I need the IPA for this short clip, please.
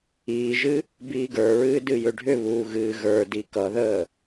iːʒɨ | biːɡə˞ɹɨː dɨjʏɖʱʏβuː ɣɨːɣə˞di kʌðəː

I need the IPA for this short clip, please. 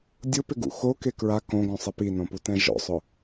dʲʊpɪɡṵ xoke kɹa kõɡõsˤɪ pinõputɛ̃ ʒɔ̰sˤʊ

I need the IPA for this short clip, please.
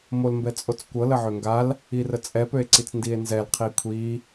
molmbɛt͡sʼot͡skʷɤ ləʕøŋɡal | irət͡sʼɛ pøe̯ǀit͡sndie̯nzɛl qʰikʷʰi

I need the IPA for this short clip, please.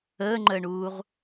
əːŋ͡ǃəːɳuːʁ

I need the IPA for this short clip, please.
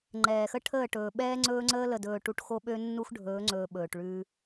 ŋ͡ǃɛː˨xə˦ ʈʰəː˦˨ʈɵː˨ɓɛː˦ ŋ͡ǀɵː˦ŋ͡ǀəː˦ lə˨dɵː˨ʈu˨ʈ xo˦ɓø˦ nːu˦xɖʱɵː˨˦ŋ͡ǀɵː˨ ɓɵː˨ʈɭʉː˦

